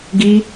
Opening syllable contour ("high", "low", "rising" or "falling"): high